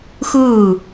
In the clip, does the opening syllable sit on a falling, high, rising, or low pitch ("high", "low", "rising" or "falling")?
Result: falling